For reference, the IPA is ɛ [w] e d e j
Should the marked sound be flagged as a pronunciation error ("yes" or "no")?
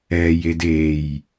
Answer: yes